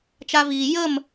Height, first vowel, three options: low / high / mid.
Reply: low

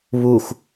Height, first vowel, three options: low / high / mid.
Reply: high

